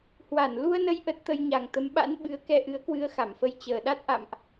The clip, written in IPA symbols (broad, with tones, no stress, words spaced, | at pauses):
hwa˧˩n lu˧ə̯nə˧j ʔə˦˥t̚t̪ə˧j ɲa˨˩ŋt̪ə˨˦m ɓa̰˧˥n ɓɨ˨˦ə̯kɛ˧ʔɨ˨˦ə̯kwɨ˧ə̯ xa˧˩mfə˧j t͡ɕəː˨˩ɗa˦˥t̚ʔa̰˧˨mʔ